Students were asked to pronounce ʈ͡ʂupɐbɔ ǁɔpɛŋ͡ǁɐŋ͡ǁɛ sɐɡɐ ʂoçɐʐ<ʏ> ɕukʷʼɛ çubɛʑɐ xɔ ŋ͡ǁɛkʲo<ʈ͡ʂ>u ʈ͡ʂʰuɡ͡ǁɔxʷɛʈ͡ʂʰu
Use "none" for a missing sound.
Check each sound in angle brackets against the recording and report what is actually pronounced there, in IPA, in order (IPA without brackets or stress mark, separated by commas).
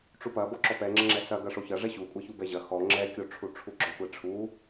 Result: ɛ, ʈ͡ʂʰ